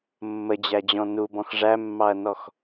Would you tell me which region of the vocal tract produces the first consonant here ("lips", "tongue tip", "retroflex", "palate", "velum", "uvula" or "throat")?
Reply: lips